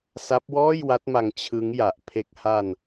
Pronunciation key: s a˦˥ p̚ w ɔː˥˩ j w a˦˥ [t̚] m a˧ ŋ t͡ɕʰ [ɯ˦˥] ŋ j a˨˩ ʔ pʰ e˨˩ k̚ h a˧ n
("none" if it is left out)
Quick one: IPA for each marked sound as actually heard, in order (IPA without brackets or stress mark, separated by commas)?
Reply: t̚, ɯ˦˥